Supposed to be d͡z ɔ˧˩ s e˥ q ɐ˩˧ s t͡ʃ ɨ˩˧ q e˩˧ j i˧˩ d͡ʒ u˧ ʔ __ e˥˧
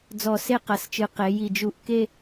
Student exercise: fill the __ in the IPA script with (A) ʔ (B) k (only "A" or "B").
B